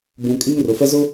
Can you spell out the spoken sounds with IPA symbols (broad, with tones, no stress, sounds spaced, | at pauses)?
b ũ˨ kʼ i˦ ŋ r ʊ˨ f ɛ˦ z ʊ˦